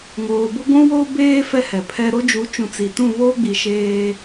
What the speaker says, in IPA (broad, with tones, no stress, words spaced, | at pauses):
ŋoː˨bʊ˦ɡʷũ˦wo˦ beː˦ fɛ˦hɛ˨pʰɛ˦ ɾo˦d͡ʒu˨˦t͡ʃũ˨ t͡si˨tũ˦˨βoː˦ɡ͡bi˨ ʃeː˦